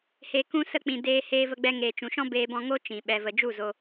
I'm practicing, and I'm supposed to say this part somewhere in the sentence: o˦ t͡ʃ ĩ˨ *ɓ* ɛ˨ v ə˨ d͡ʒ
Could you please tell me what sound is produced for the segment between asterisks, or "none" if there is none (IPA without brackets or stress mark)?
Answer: ɓ